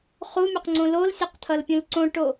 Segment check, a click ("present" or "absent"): present